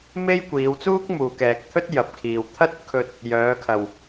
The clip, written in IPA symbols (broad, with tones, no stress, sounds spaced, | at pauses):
m e˥ j kʷ iː˨˧ w t͡s uː˥ k̚ m uː˨ k ɛː˨ k̚ t̪ʰ ɵ˥ t̚ j ɐ˨ p̚ kʰ iː˨ w t̪ʰ ɐ˥ t̚ kʰ ɵ˧ t̚ | j œː˨˧ kʰ ɐ˨ w